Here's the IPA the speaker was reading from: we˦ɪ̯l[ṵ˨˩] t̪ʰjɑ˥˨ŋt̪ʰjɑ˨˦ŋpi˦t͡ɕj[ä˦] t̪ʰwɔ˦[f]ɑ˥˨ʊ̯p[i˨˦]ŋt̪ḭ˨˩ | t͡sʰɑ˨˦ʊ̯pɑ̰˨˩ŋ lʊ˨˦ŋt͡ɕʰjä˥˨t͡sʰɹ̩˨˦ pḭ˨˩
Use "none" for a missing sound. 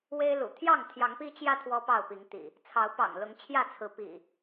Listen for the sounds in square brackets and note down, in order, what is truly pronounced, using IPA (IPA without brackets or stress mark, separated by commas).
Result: ṵ˨˩, ä˦, p, i˨˦